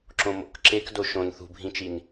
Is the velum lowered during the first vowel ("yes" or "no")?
yes